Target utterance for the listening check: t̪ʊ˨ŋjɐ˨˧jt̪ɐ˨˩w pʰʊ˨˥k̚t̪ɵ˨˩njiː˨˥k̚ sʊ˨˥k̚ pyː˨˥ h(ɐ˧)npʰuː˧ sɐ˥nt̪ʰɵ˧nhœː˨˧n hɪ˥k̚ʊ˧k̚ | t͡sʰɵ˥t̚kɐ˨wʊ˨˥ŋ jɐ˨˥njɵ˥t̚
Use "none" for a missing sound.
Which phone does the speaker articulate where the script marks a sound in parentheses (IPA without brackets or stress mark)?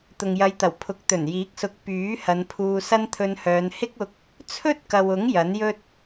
ɐ˨˧